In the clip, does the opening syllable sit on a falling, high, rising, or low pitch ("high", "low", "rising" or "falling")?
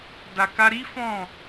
low